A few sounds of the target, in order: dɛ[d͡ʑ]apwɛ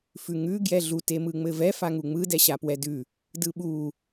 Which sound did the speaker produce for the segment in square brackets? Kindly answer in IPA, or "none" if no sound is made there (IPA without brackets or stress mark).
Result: ɕ